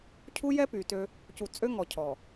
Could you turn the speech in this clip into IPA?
cʰu˦jɛ˦ py˨tø˦ | cu˨t͡sʼø˦ ŋɔ˨cʰɔ˨

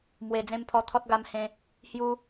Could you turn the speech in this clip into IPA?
mwe˨˩d͡zẽ˧mpʰɔ˧t̪ʰɔ˦t̚ ɡa˧mhẽ˧ | hju˧

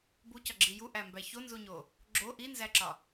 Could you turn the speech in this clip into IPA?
bucɒɡ͡ǁi juʔæmbæ çonzuɲo | ɡ͡ǁo ʔinzæǁɒ

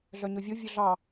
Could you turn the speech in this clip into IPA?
ɮœɲɵvʲo vʲɵɮɑ

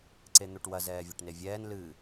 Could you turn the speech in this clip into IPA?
ǀen̪oʈwɐ zɛːvʲɐʈnevʲɛːn lɨ

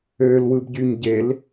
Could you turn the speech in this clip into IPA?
øl wɯbɟyɲɟel

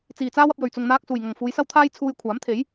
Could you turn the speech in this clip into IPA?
t͡siː˨˩t͡saː˥wɐ˧p̚ jɵ˨˩ɥ t͡sʊ˨ŋn̪aː˧k̚ suː˨˩jŋɐ˨˩ŋ fuː˨˧jsɐ˥wt̪ʰaː˥jt͡sʰuː˧j kʷʰaː˨˥mt̪ʰe˨˥j

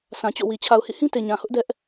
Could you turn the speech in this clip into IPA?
sʰã˨t͡ɕo̰˦˨wi˨ t͡ɕʰa˨ʊ̯hḭ˦˨hĩ˦te˨ ɲã˨hʊ˦ʔ dɛ˦ʔ

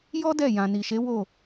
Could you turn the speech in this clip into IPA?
jɔ˦ dɛ˦˨ jã˨ ni˨ ʃe˨˦wo˦˨

